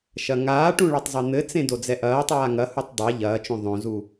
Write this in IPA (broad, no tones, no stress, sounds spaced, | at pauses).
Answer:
ʃ ɐ ŋ aː ʈ ũ ɭ a tˤ zˤ e n̪ ɘ t͡s ẽ d o d͡z ɛ ʔ ɐː tˤ aː ŋ ɐ h u tˤ dˤ a ʎ ɐː t͡ʃ õ ðˤ õ z u